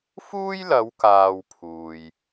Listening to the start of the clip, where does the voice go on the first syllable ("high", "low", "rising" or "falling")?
high